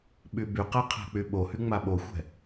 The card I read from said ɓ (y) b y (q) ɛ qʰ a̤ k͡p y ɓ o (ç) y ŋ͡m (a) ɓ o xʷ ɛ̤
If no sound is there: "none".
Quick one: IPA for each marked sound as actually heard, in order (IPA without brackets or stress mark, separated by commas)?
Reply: y, q, h, a